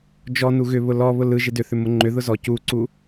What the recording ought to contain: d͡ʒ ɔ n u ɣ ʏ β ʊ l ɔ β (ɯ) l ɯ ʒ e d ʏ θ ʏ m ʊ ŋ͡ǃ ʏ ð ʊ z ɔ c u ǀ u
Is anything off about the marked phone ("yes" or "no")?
yes